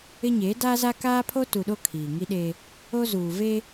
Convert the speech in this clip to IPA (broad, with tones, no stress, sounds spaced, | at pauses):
ɪ˦ ɲ eː˨˦ d aː˦ z a˦ k aː˦ pʰ o˦ t u˨ ɗ o˦ kʰ iː˨ ŋ i˦ ɗ e˦ | o˦ z uː˨ v e˦